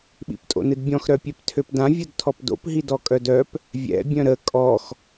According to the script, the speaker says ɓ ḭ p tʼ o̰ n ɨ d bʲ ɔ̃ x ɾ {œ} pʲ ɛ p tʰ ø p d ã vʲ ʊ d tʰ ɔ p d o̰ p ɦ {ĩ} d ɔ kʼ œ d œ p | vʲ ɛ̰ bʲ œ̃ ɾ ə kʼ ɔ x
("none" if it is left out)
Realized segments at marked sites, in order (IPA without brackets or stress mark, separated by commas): œ, i